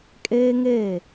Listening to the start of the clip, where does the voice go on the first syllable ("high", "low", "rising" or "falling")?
high